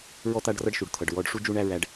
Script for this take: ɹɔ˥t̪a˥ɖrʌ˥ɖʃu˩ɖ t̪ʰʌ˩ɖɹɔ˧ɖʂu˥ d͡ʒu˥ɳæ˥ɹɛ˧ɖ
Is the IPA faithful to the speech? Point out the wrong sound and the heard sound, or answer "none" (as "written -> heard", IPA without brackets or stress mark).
ɛ˧ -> æ˧